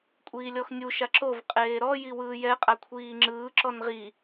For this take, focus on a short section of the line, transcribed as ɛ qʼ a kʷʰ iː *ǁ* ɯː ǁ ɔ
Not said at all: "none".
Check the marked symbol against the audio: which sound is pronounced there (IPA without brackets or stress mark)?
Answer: ŋ͡ǁ